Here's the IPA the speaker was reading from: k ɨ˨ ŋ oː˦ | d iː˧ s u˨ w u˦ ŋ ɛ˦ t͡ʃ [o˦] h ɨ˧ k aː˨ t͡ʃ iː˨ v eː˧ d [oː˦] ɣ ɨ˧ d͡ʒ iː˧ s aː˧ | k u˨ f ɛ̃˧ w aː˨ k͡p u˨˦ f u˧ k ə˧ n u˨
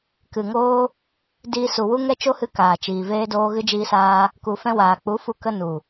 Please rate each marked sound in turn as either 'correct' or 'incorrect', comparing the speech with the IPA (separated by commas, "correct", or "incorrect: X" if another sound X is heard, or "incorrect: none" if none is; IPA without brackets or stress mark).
correct, incorrect: oː˧